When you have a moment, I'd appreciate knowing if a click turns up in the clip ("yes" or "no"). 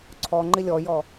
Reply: yes